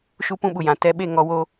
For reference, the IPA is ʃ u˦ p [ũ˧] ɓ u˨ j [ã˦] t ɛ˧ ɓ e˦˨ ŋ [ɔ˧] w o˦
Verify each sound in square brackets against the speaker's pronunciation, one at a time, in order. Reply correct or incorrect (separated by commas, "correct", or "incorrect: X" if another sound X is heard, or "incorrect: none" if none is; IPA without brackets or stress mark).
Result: incorrect: ũ˦, incorrect: ã˨, correct